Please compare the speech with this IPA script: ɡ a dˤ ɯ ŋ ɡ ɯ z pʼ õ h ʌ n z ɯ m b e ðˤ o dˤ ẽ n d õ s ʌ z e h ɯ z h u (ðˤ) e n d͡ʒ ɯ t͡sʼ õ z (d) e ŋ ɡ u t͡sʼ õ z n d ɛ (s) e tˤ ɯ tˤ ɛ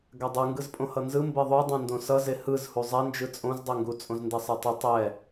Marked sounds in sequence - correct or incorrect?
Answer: incorrect: zˤ, incorrect: dˤ, incorrect: sˤ

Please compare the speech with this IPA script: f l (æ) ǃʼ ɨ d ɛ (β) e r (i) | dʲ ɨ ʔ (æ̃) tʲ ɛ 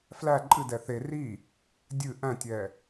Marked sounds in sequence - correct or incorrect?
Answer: correct, incorrect: θ, correct, correct

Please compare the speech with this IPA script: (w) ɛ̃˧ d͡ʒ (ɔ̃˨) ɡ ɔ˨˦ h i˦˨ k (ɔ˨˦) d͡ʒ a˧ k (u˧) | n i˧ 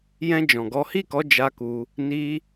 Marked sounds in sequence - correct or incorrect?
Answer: incorrect: j, correct, correct, correct

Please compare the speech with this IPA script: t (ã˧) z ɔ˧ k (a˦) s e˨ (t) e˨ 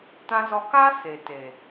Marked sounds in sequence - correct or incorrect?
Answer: correct, correct, correct

